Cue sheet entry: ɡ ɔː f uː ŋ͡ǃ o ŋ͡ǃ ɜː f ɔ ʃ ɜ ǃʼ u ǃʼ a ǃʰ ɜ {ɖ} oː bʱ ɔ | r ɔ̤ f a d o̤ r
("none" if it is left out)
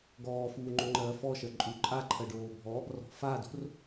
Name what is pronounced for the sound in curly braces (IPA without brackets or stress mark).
ɖ